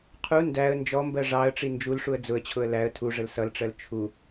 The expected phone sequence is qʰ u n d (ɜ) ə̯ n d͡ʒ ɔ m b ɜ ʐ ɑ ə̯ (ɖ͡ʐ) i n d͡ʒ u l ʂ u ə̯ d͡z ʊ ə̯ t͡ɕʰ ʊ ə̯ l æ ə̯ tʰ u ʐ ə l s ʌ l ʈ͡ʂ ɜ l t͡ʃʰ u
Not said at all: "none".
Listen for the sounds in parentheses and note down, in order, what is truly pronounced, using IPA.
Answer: æ, ʈ͡ʂ

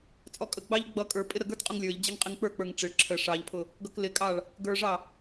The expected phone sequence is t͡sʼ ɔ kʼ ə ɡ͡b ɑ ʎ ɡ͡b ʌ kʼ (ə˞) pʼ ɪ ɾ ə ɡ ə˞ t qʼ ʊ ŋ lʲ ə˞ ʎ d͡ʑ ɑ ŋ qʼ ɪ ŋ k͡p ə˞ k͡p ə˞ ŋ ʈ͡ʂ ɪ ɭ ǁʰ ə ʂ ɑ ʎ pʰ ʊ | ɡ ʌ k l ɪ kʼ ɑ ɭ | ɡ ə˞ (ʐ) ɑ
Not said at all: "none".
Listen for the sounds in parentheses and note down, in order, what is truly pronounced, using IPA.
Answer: ə˞, ʐ

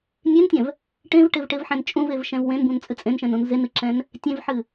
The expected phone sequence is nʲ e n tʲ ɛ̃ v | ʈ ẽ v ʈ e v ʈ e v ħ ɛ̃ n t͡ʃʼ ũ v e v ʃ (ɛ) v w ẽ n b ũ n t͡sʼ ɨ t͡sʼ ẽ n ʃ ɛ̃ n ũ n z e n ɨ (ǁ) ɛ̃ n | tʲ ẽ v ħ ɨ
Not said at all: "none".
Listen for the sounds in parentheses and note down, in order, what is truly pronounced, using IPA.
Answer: ɛ̃, ǁ

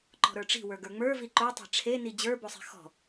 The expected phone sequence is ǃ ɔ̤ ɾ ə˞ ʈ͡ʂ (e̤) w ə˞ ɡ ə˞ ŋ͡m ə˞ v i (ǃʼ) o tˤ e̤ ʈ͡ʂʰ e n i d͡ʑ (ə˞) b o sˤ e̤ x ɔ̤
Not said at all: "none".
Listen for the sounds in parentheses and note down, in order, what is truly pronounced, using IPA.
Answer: i̤, ǃ, ə˞

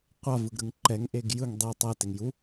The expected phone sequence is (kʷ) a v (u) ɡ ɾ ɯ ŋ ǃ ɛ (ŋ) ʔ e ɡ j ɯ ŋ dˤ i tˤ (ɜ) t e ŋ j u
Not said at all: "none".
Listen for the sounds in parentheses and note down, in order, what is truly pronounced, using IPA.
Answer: qʷ, ɯ, ŋ, ɛ

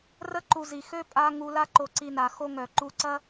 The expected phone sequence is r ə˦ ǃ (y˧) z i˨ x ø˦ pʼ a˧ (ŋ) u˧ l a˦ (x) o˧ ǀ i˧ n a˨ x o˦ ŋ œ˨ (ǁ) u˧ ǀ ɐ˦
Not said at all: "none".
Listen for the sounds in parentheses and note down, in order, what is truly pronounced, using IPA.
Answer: u˧, ŋ, ǃ, ǃ

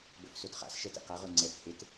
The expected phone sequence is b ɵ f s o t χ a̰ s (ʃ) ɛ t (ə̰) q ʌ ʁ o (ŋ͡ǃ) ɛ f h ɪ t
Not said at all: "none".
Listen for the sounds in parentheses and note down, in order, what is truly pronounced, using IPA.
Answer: ʃ, ɛ̰, ŋ͡ǀ

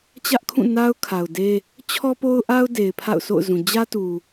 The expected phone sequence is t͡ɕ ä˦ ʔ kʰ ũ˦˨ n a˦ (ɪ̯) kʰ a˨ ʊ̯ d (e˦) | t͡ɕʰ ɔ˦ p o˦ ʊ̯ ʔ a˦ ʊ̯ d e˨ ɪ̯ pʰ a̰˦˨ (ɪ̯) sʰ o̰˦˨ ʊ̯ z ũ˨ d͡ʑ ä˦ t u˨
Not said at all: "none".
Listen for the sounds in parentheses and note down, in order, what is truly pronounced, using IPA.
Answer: ʊ̯, e˦, ʊ̯

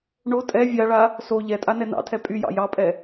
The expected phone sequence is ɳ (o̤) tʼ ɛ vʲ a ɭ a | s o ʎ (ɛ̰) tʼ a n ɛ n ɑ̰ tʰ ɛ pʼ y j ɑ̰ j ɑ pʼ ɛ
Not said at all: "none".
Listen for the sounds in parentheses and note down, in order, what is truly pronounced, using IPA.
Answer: o, ɛ

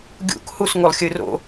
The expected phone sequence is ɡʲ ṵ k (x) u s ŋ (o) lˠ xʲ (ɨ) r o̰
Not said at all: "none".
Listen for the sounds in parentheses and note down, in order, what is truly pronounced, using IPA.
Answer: h, u, ɨ

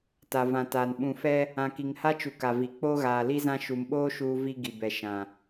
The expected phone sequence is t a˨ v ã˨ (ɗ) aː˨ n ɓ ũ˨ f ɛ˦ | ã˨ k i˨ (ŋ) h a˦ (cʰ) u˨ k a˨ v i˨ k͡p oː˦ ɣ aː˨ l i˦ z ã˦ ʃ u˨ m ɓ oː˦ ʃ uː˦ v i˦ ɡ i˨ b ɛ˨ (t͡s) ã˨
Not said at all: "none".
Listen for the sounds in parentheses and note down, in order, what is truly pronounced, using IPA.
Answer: t, ŋ, t͡ʃ, ʃ

